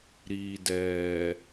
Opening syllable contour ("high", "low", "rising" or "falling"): low